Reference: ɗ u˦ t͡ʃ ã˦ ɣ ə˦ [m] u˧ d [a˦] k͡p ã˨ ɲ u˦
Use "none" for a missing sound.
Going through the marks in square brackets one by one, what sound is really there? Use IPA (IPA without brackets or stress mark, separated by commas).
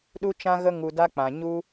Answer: ŋ, a˦